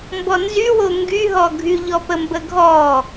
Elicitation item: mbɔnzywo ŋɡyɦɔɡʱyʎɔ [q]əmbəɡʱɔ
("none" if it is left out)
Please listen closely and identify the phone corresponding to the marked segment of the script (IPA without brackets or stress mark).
p